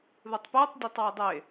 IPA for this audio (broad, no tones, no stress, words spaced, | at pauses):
ðɨtˤpɨːtˤ dʲɛtˤwɛdˤe